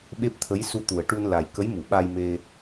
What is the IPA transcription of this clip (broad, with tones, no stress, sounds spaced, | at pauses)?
ɓ e˦˥ p̚ t̪ʰ ə˧˥ j s u˧ t̪ u˨˩ ə̯ ʈ u˧ n l a˨˩ j k ə˧˥ j m u˨˩˨ ɓ a˧ j m e˧